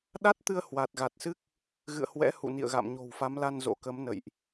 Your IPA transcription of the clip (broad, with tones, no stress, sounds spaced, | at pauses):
ɗ a˦˥ t̚ t̪ ɨ˧ ə̯ h w a˨˩ t̚ ɣ a˨˩ t̚ s ɨ˦˥ k̚ | ɣ ɨ̰˧˨ ə̯ h w ɛ̰˧˥ h ṵ˧˨ n ḭ˧˨ ə̯ ɣ a̰˧˨ m ɲ o̤˨˩ w f a˨˦ m l a˧ n z o̰˧˥ k ə˨˦ m n ə̰˧˨ j ʔ